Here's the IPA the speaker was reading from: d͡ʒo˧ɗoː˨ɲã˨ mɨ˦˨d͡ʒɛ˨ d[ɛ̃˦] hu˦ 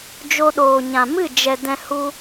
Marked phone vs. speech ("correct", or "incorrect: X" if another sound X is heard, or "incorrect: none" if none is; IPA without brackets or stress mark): incorrect: ɛ̃˧